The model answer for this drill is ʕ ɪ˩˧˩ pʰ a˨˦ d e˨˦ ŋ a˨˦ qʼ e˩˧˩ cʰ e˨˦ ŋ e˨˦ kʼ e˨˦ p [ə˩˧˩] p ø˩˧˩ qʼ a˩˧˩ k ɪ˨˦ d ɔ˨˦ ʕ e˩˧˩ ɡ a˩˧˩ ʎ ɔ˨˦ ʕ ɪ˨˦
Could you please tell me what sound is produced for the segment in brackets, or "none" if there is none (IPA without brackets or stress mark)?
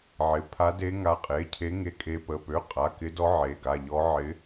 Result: ə˩˧˩